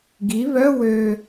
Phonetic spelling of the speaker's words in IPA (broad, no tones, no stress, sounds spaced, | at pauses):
ɡ i β œ w ø